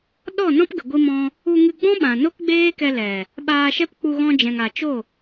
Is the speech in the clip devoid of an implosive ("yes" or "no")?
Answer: no